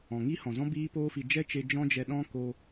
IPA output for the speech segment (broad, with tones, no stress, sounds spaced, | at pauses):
ɔ̃˨ ŋ i˦ h ɔ̃˨ z ɔ̃˦ b iː˦ p oː˦ f i˧ d͡ʒ ɛ˦ t͡ʃ e˧ d͡ʒ ɔ̃˦ d͡ʒ ɛ˧ ɗ ɔ̃˦ k o˧